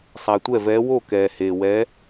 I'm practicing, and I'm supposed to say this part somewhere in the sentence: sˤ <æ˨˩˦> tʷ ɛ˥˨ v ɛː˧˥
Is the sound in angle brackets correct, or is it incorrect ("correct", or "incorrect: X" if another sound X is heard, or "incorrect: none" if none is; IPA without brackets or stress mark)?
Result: incorrect: æ˨